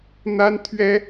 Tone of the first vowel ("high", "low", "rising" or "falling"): high